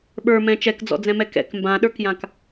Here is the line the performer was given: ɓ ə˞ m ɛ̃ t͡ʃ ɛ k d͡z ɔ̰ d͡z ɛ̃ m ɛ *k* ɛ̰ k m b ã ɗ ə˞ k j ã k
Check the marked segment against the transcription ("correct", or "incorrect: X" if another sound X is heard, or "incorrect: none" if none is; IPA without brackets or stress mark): correct